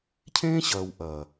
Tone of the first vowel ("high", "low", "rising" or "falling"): high